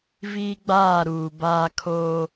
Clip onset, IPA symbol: v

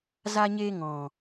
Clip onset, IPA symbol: z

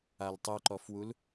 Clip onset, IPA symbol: a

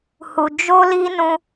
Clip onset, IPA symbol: h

